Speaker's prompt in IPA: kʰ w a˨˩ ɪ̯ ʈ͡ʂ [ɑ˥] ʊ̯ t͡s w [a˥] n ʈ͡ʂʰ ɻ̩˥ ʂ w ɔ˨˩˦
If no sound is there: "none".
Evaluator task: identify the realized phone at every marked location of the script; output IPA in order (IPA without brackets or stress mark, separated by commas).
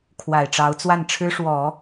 ɑ˧˥, a˥˩